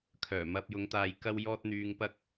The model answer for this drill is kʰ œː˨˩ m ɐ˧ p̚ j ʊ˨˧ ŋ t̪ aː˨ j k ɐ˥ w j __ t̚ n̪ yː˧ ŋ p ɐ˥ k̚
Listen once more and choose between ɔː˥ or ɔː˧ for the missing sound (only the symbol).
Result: ɔː˥